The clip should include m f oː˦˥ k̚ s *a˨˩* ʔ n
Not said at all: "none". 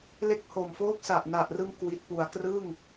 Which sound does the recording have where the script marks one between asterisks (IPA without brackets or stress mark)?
a˨˩